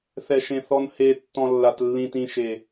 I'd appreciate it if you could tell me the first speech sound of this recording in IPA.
θ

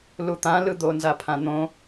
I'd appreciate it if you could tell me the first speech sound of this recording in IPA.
l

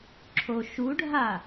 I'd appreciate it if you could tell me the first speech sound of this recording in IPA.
ǁʰ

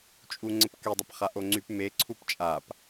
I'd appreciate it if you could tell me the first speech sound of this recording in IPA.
t͡ʃʼ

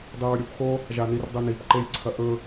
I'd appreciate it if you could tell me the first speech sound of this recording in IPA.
dˤ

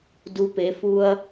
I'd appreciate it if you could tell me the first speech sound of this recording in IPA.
d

